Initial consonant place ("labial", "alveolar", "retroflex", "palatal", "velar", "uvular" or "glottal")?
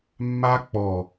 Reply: labial